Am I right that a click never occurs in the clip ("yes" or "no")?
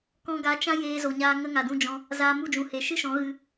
yes